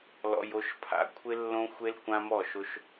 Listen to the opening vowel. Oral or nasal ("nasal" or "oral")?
oral